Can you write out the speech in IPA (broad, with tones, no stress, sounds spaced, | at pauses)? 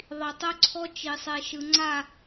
ðˤ i˨ tˤ ɵ˦ ǀʰ ɔ˦ t͡ʃ i˨ sˤ e˨ ʃ ɯ˨ ŋ͡ǀ a˦˨